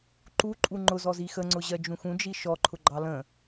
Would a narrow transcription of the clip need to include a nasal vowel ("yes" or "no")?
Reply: yes